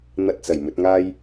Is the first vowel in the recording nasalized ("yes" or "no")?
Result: no